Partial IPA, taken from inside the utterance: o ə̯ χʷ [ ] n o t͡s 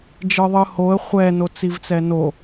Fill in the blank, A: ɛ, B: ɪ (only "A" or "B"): A